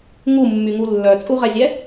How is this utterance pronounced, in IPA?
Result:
ŋumːyŋu lːœt͡sʼuʁɛzʲɛ

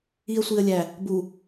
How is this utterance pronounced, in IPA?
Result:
iə̯sʷiə̯lʲæ | bu

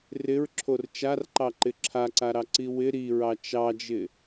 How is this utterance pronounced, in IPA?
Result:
rɪɹǁʰor t͡ʃarǃɑǃɪ ǁʰaǀaɾɑǀi wɪ ɾiɹɑ t͡ʃɑd͡ʒɪ

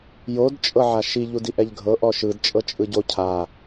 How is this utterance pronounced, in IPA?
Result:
jodt͡ʃʼɤʕa ʃiʎudiʔɛʎ ɡʱɤʔɔ ʃɯdt͡ʃʼɤt͡ʃʼɯ ɟo cʰa

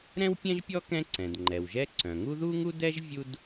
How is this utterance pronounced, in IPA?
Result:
ɾɛ̃˥wpʲɛ̃˥ʒpʲɔ˥ kɛ̃˥ǀɛ̃˩dŋ͡ǃɛ˩wʒɛ˥ ǀœ̃˩ŋu˥ ðu˥ŋu˥dɛ˥ʒ vʲu˥d

